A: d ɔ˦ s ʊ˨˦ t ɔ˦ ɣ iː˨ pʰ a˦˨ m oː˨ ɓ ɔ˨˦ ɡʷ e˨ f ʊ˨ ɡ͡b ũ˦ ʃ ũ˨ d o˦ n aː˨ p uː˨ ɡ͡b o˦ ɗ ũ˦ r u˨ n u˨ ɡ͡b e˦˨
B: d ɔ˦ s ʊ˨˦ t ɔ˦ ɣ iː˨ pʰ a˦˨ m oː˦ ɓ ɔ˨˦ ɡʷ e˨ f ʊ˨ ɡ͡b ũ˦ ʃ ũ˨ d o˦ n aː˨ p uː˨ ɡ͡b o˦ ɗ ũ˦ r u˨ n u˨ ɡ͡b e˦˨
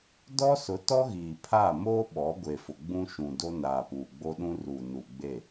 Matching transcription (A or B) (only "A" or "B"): B